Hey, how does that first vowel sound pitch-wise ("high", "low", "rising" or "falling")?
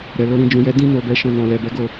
low